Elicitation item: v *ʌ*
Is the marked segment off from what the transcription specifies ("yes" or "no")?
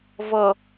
no